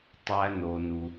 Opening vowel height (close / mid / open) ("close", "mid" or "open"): open